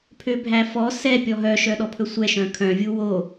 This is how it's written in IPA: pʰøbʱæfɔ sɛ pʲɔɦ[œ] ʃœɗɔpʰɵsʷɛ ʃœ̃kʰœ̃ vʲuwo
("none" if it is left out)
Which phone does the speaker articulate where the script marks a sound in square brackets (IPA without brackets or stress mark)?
œ